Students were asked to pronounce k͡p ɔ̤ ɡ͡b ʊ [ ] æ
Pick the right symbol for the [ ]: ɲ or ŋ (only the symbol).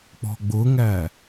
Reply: ŋ